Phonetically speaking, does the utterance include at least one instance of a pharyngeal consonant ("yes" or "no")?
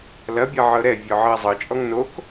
yes